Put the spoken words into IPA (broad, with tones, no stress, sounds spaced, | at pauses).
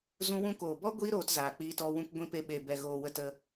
z ũ˧ w ũ˧ k oː˨ b ɔ˦ ɡʷ i˦ ɾ oː˧ t z aː˨ k͡p iː˧ t ɔ˧ w ũ˧ k ɡʷ ĩ˧ p e˧ ɓ e˨ b ɛ˨ ɣ oː˨ w ə˧ t ə˧